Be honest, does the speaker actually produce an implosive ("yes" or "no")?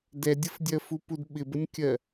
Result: yes